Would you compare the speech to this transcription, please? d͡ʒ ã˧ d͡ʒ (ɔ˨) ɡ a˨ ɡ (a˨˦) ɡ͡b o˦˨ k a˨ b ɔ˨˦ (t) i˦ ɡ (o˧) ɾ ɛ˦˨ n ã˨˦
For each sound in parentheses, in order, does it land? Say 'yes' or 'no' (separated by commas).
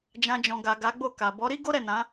no, yes, no, no